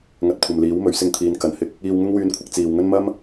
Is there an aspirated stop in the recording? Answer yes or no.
yes